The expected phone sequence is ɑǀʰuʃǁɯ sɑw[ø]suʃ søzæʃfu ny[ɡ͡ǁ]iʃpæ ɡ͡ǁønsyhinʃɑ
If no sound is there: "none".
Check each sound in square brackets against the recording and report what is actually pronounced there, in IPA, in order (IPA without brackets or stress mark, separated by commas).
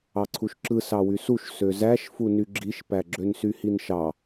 y, ɡ͡ǁ